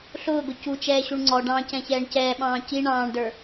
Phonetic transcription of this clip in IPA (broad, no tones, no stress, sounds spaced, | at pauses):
ɬ ʊː ɡ ʊ c u t͡ʃ ɛː ɕ u ɳ ŋ͡ǀ ɔ ɖ ɑ̃ː c ɛ̃ ç ɛː ɳ c ɛː ɓ ɑ̃ː c i ɳ ɑ̃ː ɳ d ə˞